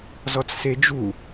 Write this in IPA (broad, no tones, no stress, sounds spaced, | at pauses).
z ɔ t͡s s e d͡ʒ u